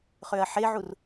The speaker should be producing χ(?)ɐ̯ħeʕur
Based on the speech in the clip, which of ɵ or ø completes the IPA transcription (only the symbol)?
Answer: ø